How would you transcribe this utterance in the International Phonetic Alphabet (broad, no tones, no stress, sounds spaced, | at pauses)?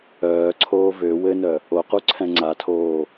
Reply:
œː ǀʰ oː v ø w ɘ n œ | o q u ǀʰ ɛ̃ ŋ͡ǀ a tʰ oː